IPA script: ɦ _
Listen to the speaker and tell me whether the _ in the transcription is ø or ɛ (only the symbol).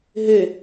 ø